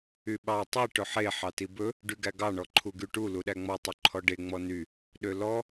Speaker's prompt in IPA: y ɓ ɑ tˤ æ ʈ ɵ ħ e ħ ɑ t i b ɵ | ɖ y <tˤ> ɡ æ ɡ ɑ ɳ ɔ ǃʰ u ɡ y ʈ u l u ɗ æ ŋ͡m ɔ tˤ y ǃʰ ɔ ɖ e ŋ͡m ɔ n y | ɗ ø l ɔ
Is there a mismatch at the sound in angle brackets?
yes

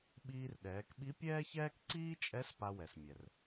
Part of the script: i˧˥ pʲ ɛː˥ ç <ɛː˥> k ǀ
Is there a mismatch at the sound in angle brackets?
no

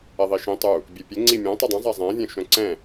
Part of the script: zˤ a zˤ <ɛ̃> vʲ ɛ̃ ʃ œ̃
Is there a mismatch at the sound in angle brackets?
no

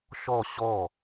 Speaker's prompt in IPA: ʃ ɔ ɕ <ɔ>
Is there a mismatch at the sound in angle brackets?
no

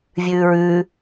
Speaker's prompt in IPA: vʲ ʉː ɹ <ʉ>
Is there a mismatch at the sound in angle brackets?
no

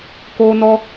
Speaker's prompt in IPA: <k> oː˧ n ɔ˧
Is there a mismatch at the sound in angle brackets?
no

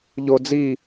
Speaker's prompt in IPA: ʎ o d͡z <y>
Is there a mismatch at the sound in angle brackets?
yes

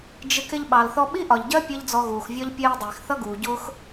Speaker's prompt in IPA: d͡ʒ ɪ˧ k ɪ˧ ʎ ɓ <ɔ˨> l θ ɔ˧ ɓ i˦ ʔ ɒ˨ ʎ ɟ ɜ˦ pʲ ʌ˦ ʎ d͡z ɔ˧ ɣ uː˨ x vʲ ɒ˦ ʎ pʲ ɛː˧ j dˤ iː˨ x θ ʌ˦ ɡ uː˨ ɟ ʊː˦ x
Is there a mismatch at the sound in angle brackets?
yes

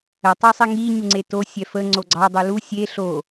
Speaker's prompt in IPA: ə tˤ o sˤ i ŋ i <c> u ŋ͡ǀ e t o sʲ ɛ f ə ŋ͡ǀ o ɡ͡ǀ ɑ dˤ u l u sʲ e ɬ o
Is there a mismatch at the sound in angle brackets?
yes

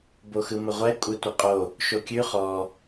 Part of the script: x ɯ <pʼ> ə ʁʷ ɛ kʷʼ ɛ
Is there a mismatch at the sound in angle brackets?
yes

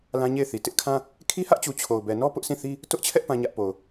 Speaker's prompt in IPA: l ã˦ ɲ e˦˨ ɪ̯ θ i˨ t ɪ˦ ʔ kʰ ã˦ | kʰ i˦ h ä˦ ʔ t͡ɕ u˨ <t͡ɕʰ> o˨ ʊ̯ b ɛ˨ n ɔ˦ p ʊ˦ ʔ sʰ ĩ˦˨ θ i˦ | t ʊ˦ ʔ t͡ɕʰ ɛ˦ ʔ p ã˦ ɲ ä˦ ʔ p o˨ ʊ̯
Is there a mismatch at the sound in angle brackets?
no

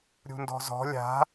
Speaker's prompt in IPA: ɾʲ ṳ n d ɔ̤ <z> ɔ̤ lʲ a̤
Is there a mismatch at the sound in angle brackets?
no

